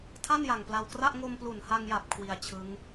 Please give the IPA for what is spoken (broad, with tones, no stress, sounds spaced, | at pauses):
tʰ a˥˩ n j a˨˩ ŋ p l a˧ w k r a˥˩ ʔ ŋ o˧ m p l u˨˩ n h a˧ ŋ j a˨˩ p̚ kʰ w i˧ a̯ t͡ɕʰ ɯ˦˥ ŋ